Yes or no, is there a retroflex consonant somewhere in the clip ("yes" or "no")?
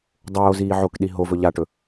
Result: yes